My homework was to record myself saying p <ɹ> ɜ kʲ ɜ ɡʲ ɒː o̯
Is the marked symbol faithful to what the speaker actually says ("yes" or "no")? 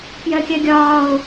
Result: no